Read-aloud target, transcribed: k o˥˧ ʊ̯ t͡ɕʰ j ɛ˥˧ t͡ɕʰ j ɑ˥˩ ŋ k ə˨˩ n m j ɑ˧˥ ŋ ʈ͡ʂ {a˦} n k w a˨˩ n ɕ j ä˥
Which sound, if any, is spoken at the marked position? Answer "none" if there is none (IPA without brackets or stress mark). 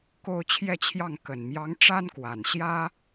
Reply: a˥